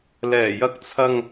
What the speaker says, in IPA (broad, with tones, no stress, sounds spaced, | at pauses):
l ɛː˨˩ j ɐ˧ k̚ t͡sʰ ɐ˧ ŋ